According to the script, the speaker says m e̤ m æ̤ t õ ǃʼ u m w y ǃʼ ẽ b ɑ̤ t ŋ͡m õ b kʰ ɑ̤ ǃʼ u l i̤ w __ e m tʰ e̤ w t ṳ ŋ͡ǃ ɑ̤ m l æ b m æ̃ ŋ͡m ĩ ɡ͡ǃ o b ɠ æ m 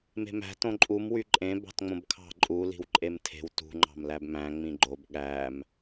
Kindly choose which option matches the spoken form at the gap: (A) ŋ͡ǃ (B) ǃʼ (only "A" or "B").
B